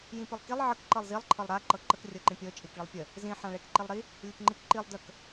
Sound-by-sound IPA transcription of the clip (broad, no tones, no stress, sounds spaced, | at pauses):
j ĩ p ə lˠ k i lˠ ʕ ə k ǃ ɤ lˠ z i lˠ ǃʰ ɤ lˠ ɾ a ǃ ɤ ǃ ə k rʲ ɤ ǃ ĩ pʲ ɤ t͡ʃʼ i k ɭ ə lˠ pʲ ə | z ĩ ħ ã ɭ e k ǃ i lˠ ɾ i | lʲ ə k ŋ͡ǃ i k ǃ i lˠ d ə k